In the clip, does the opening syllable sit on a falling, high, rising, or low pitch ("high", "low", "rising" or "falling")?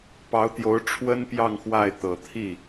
rising